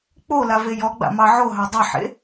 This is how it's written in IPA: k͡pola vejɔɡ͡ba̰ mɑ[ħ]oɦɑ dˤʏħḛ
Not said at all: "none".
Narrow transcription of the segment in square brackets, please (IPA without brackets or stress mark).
ʕ